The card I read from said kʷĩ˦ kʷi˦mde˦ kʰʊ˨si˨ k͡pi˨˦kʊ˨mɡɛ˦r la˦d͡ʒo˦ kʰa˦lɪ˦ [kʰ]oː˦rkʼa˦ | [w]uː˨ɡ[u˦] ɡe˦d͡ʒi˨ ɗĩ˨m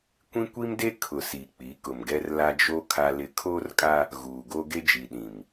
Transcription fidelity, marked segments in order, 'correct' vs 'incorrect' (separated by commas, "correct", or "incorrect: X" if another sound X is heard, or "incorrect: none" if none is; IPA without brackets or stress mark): correct, incorrect: ɣ, incorrect: o˦